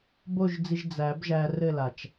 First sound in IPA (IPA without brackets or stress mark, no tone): b